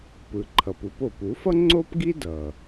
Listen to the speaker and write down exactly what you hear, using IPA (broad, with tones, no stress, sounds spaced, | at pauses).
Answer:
p ɯ˩ ǃʰ ʌ˩ p u˧ p o˩ p u˩˥ f ʌ˥ ŋ͡ǀ o˥ p ɡ i˥ d ʌ˩